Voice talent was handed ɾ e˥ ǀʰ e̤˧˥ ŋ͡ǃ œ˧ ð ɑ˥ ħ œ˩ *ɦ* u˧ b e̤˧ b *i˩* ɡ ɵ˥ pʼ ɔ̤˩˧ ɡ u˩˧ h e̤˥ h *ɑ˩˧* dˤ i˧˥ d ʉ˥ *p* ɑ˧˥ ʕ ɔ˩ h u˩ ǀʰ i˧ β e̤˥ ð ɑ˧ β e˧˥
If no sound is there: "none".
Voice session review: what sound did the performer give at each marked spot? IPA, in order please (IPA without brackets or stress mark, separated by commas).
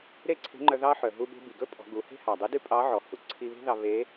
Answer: ɦ, i˩, ɑ˩, pʼ